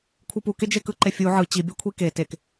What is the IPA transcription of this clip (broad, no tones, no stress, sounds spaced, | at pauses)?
kʷʰ ɯ p u k e d͡ʒ e k ɯ ǃ e fʲ u ʕ ɯ t͡ɕ i bʲ a kʷʰ i k e t e k